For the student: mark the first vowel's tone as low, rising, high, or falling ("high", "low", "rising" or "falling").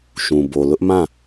low